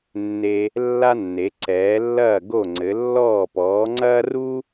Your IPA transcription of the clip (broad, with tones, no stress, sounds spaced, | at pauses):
nː e˧ | lː a˥ nː e˩˥ ǀ ɛː˩˥ lː ɐː˥˩ ɡ o˥˩ ŋ͡ǀ ɘ˩˥ lː ɔː˥˩ p ɔː˩˥ ŋ͡ǀ ɐː˥ r u˥